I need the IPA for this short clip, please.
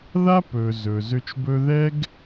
ð a˦ p ɵ˨ z ɵ˨ z ø˧ t͡ʃ b ɵ˦ ð ɛ˦ ɡ

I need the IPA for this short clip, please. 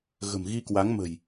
ɣ ə̤˨˩ m ɣ i˧ k w a˨˦ ŋ m ə̤˨˩ j

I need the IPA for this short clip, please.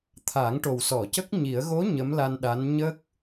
t̪ʰ aː˨˩˦ ŋ ʈ o˨˩ w s ɔ˨˩˨ c ə˦˥ k̚ ɲ i˨˩˦ ə̯ ɣ o˧˥ ɲ ə˧˥ m l a˧ n ɗ a˧˥ n ɲ ə˦˥ k̚

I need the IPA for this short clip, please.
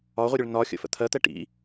ɒ ʁʷ ə ɾʲ ʊ ɭ n ɒ xʲ ə̰ f ə̰ t̪ʰ ɜ t̪ ɛ ʈ ḭ

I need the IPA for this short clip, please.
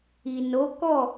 i˨ n o˨˦ k ɔ˦˨

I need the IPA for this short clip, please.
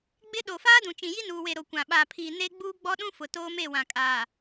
ɡ͡b ɪ˦ ɗ o˨ f aː˦ d ũ˨ t͡ʃ ĩ˨ j i˦ n uː˨ w e˨ ɾ o˨ kʷ ã˨ ɓ aː˨ pʰ iː˨ n e˦ ɡ͡b uː˦ ɡ͡b ɔ˦ ɗ ũ˦ f ʊ˨ t oː˦ m e˦˨ w ã˨ kʼ aː˨

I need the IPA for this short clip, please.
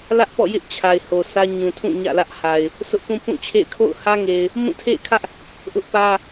l ä˦ ʔ p ɔ̰˦˨ j ɪ˦ ʔ t͡ɕʰ a˨ ɪ̯ h o˨ sʰ ä˦ ɲ ũ˨ tʰ ũ˦˨ ɲ ä̰˦˨ l ä˦ ʔ h a˨ ɪ̯ | sʰ ʊ˦ ʔ p ũ˦ p ũ˦˨ t͡ɕʰ ḛ˦˨ ɪ̯ kʰ o̰˦˨ ʊ̯ h ä˦ ŋ e˨ ɪ̯ | m ũ˦˨ tʰ ḛ˦˨ ɪ̯ kʰ ä˦ ʔ | ʔ ʊ˦ ʔ p ä˦

